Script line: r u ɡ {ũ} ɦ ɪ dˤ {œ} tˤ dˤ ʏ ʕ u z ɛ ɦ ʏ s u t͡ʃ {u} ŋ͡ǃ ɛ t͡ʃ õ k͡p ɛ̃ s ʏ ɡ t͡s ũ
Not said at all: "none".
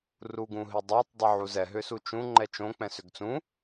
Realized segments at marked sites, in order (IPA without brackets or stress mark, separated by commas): ũ, œ, ũ